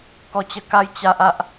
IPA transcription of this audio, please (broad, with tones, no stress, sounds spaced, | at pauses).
k ɔ˧ t͡ɕ ə˧ k a˦ j t͡ɕ a˦ ʔ a˦ ʔ